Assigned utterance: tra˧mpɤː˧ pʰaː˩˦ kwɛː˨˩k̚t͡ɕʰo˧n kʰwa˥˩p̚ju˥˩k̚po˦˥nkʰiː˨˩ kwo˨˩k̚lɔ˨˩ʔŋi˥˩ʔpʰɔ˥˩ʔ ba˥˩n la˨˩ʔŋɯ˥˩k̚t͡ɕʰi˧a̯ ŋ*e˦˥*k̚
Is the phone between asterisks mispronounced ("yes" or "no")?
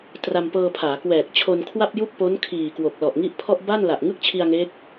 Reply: no